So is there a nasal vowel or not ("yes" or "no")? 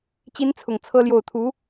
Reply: no